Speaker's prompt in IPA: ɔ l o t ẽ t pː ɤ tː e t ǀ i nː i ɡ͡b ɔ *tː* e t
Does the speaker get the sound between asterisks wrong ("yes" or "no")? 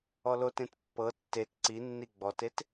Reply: yes